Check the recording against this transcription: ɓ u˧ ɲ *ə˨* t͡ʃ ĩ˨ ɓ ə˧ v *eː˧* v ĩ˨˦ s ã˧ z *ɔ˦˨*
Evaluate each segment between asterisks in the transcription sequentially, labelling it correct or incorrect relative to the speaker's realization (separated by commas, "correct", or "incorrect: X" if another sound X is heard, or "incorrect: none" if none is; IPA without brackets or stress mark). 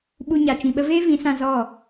incorrect: a˨, incorrect: eː˦, correct